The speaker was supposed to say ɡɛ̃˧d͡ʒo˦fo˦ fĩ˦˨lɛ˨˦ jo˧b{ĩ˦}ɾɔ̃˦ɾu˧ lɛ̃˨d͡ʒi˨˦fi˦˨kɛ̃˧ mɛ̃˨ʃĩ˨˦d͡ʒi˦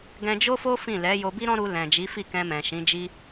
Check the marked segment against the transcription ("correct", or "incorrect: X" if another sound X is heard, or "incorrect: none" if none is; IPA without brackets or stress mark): incorrect: i˦